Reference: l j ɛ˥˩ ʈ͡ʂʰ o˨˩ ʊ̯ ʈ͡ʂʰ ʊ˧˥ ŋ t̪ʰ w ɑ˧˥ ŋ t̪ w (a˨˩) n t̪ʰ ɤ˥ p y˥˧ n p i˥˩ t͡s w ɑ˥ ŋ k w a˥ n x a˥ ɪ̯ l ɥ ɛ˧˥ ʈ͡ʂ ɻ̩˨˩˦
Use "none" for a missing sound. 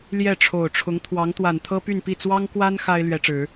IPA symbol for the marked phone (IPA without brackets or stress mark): a˨˩